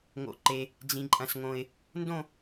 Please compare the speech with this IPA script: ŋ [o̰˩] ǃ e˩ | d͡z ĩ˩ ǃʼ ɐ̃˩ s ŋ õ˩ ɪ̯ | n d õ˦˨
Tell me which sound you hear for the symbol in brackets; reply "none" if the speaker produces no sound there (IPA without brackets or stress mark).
o̰˩